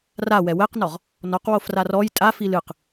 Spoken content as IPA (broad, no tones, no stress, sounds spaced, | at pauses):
r a w ɛ w ɛ q n ɔ ʁ | n ɔ q w o f r a r ɔ j tʼ a f i l ɨ q